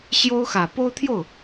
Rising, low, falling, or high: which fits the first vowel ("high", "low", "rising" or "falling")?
high